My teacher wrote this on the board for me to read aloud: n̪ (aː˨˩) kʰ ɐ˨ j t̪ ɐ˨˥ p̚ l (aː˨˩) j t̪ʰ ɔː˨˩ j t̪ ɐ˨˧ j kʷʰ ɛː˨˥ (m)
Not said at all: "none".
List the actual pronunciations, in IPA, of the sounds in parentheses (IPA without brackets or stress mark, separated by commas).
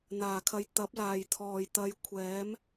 aː˨˩, aː˨˩, m